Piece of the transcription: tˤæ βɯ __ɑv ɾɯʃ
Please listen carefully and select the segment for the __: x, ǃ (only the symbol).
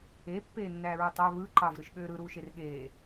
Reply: ǃ